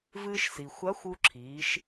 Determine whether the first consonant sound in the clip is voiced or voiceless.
voiced